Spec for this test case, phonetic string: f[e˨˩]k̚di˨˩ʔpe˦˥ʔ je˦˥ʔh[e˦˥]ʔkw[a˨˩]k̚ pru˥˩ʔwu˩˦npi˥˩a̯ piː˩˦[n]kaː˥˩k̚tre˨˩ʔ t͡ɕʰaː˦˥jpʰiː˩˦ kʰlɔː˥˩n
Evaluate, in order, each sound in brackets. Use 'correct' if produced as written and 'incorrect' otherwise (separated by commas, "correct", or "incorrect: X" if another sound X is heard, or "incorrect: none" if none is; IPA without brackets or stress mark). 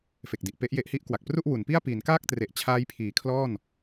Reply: correct, incorrect: i˦˥, correct, correct